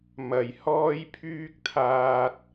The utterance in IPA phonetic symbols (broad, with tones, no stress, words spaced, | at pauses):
mɐ˨˩j hɔː˧jpʰyː˧k̚t̪ʰaː˨t̚